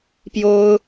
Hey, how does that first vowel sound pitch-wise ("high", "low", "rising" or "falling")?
high